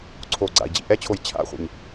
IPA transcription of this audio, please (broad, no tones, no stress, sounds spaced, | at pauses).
ǀʰ o ɡ͡ǀ a̰ i̯ d͡ʑ ḭ ʔ ɛ t͡ɕʰ o j t͡ɕʰ a̰ χʷ ḭ ɲ